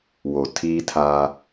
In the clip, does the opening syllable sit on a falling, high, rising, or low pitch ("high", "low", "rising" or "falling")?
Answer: low